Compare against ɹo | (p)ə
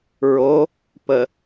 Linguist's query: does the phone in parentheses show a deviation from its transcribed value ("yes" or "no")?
no